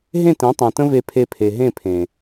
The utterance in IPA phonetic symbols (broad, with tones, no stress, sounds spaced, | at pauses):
ɦ ẽ˦˨ t ẽ˨˦ tˤ ẽ˨ t ə̃˦ v e˧ pʰ e˧ pʰ e˨ ɦ ẽ˦˨ pʰ ẽ˨